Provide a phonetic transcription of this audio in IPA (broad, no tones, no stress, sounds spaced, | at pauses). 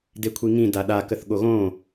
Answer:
d e kʷʰ i ŋ ĩ d a ɗ a k ə θ ɠ o ɣ õ